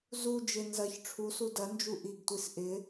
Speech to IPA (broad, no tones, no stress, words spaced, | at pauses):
zu d͡ʒɪ nzɐç ʈ͡ʂʰusu dɐnd͡ʒu ʔiɡtʷis ʔɪ